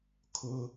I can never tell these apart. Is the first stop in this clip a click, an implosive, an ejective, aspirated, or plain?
aspirated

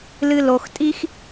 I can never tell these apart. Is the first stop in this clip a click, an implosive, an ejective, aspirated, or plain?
ejective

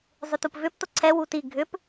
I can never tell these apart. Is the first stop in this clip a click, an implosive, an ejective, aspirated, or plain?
plain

